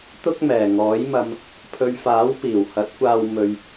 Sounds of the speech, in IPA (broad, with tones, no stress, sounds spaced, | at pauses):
t̪ ʊ˥ k̚ m ɛː˨˩ ŋ ɔː˨˥ j m ɐ˧ m | pʰ ɵ˨ ɥ f aː˨˥ w p iː˨˩ w h ɐ˨˥ t̚ kʷ aː˧ w m ɵ˧ ɥ